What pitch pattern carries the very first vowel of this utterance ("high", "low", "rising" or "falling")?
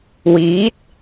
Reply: rising